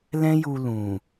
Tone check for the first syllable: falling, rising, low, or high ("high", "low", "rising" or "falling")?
high